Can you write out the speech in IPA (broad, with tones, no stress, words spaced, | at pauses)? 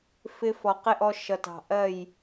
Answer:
fɪ˧fɔ˨ qɪ˦ʔɔ˧ ʃʌ˨tɑ̤˨ʔɜ˦˨j